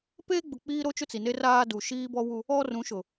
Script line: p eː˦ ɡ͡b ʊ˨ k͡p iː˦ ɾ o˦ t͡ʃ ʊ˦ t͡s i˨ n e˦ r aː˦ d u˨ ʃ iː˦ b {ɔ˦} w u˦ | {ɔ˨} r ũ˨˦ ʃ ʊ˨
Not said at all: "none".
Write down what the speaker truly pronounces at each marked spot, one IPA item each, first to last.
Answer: ɔ˦, ɔ˦

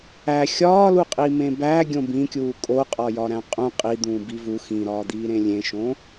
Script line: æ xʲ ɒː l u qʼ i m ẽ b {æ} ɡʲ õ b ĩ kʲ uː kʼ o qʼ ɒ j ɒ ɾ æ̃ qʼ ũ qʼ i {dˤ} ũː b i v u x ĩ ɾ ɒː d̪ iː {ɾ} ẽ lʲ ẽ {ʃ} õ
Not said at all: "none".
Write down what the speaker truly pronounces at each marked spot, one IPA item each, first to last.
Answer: æ, d̪, ɾ, ʃ

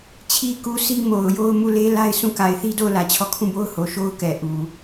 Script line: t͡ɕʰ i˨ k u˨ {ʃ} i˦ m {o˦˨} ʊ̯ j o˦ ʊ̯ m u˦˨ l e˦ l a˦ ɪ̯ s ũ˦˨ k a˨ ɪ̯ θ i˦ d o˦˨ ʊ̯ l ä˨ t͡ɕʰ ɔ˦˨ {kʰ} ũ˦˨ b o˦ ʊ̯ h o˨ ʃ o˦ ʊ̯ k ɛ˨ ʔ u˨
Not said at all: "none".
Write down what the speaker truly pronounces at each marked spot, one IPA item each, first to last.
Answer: s, o˨, kʰ

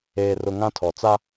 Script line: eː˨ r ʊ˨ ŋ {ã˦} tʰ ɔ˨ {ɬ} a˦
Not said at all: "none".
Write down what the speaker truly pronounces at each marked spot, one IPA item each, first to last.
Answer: ã˦, t͡s

